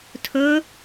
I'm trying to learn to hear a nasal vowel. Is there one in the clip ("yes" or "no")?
no